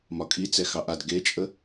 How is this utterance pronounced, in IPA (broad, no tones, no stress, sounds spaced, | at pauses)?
m ɒ kʼ i t͡s ɛ x ɑ ʔ a d ɡ e t͡ʃʼ ə